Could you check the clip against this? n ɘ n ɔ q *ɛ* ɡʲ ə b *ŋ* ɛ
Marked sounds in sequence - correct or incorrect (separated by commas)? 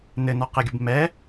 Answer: incorrect, incorrect